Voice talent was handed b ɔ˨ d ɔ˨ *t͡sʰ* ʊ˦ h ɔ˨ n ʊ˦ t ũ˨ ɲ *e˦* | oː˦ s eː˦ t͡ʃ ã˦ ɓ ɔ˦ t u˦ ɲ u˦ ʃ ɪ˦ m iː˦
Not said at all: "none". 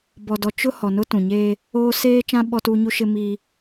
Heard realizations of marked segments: t͡ʃ, eː˦

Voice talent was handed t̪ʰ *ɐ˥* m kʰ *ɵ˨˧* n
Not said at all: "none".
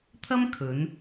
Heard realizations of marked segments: ɐ˥, ɵ˨˧

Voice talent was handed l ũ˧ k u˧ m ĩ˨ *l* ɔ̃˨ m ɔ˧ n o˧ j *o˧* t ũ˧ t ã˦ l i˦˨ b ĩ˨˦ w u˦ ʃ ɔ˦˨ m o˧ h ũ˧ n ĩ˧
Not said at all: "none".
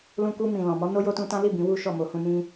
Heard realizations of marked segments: l, o˧

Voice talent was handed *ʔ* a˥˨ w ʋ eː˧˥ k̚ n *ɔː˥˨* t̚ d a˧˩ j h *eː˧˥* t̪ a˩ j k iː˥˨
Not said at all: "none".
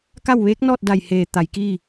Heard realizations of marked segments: k, ɔː˥˨, eː˩

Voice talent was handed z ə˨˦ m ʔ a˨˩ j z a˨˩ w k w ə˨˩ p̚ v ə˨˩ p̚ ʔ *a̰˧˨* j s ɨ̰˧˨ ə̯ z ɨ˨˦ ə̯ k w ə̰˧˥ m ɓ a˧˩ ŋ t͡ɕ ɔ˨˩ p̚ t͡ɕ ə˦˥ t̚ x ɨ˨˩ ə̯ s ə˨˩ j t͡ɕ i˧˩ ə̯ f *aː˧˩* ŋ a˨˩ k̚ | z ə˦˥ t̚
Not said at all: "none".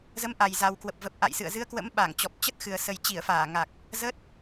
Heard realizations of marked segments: a̰˧˨, aː˧˩

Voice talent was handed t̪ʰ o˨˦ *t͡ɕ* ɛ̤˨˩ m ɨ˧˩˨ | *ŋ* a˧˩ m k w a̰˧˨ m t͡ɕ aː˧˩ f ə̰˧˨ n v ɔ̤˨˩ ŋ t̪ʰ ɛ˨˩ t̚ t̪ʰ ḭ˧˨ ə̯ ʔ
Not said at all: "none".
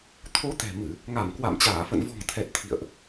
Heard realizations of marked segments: t̪, ŋ

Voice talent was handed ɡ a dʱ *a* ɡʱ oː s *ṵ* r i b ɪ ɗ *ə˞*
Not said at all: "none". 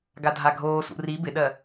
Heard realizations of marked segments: a, ṵ, ɜ

